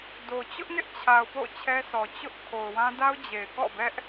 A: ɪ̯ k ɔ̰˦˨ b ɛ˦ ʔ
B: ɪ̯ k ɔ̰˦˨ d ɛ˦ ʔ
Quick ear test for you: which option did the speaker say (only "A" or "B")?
A